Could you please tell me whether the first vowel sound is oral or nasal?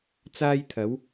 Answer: oral